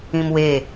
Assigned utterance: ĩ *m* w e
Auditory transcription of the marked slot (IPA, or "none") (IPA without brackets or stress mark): m